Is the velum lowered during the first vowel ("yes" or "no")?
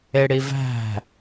no